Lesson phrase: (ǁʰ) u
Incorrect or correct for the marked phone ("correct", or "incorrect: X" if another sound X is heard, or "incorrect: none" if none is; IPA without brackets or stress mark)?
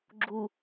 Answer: incorrect: ɡ͡ǁ